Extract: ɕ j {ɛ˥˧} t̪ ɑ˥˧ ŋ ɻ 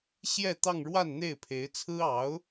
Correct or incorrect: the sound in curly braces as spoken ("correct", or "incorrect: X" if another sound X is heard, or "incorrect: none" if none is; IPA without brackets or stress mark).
correct